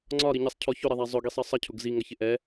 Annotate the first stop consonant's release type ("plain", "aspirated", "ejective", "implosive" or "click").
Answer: click